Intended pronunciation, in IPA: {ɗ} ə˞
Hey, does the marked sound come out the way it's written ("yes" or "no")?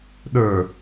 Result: yes